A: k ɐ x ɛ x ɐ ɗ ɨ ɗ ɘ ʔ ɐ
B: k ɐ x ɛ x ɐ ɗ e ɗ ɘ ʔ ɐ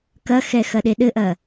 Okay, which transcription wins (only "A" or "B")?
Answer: B